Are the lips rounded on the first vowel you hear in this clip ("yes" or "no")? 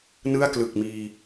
no